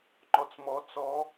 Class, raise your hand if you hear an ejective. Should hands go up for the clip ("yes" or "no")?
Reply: no